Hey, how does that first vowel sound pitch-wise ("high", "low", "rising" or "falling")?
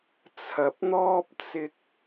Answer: low